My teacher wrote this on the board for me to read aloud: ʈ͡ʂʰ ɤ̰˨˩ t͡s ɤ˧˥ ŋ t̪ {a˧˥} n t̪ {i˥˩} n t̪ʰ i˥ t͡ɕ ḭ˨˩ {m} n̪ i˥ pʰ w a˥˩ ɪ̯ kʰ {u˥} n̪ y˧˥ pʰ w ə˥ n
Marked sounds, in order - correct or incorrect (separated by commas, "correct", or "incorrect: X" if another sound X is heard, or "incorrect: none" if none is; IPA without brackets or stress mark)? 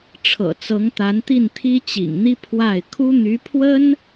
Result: correct, correct, incorrect: ŋ, correct